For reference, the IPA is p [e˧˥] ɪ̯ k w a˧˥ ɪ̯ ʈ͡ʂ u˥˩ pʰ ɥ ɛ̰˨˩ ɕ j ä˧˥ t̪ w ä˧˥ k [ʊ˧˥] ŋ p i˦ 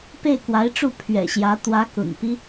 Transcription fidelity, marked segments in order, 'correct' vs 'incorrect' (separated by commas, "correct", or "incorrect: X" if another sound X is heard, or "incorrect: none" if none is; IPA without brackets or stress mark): incorrect: e˥˩, incorrect: ʊ̰˨˩